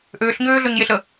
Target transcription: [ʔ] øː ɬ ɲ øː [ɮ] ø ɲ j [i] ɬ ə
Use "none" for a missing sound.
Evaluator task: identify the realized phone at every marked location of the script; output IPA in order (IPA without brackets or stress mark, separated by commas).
ʔ, ɮ, e